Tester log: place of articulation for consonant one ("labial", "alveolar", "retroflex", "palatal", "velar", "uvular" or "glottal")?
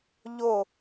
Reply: palatal